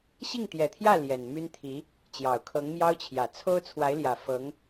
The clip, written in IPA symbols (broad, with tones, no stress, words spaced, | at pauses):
ɕi˥˩ŋt̪jɛ˨˩t̪ʰjä˥˩ ljɛ˨˩nmy˥nt̪ʰi˧˥ | t͡ɕjɑ˨˩ʊ̯kʰɤ˧˥ŋmjɑ˥ʊ̯t͡ɕʰjä˨˩ t͡sʰo˥ʊ̯t͡sʰwa˧˥ɪ̯ljä˨˩ fɤ˧˥ŋ